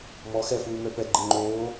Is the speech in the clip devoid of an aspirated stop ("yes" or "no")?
yes